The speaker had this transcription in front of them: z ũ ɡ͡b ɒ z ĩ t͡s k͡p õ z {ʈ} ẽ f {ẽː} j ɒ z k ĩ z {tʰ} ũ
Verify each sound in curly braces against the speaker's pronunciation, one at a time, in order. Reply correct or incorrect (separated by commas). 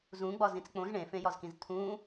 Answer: incorrect, incorrect, correct